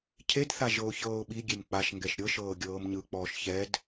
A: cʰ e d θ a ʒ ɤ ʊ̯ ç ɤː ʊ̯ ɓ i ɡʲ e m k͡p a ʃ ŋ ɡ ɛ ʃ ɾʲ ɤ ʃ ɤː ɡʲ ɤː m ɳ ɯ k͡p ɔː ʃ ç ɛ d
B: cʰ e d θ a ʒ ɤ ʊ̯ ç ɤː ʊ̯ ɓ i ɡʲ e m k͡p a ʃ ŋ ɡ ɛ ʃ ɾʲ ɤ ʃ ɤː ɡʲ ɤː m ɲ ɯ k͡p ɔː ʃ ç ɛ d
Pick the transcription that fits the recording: B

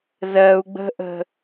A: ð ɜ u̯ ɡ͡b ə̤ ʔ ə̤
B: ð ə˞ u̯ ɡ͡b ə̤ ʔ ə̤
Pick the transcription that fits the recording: A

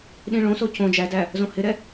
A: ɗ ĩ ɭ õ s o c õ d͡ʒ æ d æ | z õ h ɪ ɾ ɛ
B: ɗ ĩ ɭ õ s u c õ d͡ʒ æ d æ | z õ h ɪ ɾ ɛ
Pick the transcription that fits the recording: A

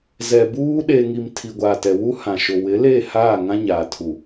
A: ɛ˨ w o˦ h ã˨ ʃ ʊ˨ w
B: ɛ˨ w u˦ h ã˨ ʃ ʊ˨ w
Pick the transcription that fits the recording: B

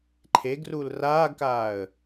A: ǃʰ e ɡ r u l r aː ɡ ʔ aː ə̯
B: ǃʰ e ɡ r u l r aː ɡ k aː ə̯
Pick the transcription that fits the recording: B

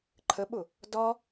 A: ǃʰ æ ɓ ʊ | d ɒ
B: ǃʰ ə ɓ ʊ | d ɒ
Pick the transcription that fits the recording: B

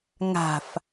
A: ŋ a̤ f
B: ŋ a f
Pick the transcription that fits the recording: A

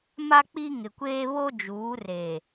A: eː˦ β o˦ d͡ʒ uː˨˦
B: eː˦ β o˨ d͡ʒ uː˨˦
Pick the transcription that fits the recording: A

